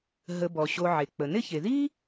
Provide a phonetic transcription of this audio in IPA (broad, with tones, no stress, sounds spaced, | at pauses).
ɦ ə˨ b ɔ˩ ɕ o˨ ʕ e˩ k͡p ə˩ n ɪ˦ ç e˩ ð i˥